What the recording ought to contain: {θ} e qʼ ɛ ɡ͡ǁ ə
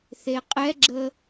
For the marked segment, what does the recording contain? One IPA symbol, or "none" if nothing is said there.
θ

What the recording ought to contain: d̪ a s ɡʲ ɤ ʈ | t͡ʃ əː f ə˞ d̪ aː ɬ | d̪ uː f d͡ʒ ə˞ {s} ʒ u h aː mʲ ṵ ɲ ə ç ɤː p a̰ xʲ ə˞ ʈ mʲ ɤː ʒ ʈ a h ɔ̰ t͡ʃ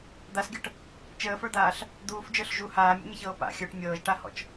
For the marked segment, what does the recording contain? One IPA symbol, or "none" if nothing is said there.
ɬ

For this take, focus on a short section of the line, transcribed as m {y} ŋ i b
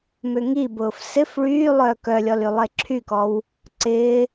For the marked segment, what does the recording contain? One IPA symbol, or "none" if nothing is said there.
ʏ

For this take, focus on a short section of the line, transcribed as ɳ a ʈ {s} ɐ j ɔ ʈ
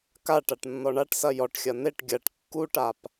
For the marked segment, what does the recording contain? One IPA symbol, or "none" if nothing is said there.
s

